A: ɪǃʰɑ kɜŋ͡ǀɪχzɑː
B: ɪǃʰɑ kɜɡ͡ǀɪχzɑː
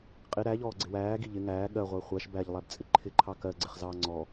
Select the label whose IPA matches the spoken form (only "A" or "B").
B